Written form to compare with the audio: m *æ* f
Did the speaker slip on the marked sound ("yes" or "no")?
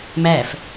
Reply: no